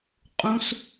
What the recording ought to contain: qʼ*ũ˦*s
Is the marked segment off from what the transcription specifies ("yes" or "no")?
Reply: no